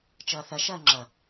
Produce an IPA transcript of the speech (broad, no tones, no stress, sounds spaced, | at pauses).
t͡ʃ ʌː θ ɐ ʃ ɐː ŋ͡ǁ ʌ